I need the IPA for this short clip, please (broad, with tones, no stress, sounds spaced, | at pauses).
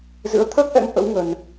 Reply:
z ɨ̰˧˥ ə̯ t̪ʰ əː˦˥ k̚ ʔ ɛ̰˧˥ ŋ ʔ ə̰˧˥ w ŋ ə˧ n